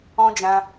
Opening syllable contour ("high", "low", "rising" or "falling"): high